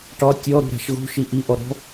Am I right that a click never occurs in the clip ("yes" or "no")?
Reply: yes